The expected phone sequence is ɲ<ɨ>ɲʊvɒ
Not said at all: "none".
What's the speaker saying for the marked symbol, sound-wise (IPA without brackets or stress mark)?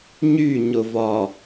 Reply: y